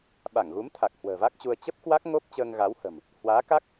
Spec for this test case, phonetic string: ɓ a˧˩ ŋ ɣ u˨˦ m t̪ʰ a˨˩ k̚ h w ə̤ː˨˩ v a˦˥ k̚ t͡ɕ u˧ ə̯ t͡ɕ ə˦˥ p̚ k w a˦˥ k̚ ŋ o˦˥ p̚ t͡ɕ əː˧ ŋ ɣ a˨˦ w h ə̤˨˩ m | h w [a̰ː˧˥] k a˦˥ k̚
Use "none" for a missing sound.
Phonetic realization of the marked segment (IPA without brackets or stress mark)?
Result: aː˨˦